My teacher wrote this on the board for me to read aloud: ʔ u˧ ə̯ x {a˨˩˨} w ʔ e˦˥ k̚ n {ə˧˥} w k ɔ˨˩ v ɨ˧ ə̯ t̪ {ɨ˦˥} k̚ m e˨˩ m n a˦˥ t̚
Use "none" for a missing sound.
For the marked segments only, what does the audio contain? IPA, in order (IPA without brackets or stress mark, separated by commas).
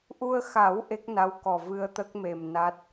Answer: a˨˩˦, a˧˥, ə˦˥